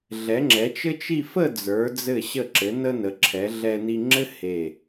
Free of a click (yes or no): no